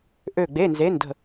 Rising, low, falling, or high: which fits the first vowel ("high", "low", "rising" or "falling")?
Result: falling